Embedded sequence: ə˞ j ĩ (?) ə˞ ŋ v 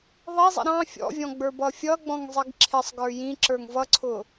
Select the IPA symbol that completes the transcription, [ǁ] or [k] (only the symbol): ǁ